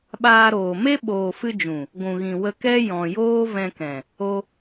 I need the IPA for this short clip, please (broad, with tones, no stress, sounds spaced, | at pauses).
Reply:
ɓ aː˧ ɾ oː˨ m e˦ ɓ oː˨ f ɨ˧ d͡ʒ ũ˨ | ɡʷ ũ˨ ɣ ĩ˨ w ə˧ k ɛ˦ j ɔ̃˨ j oː˦ v ɛ̃˧ k ɛ̃˨ | o˧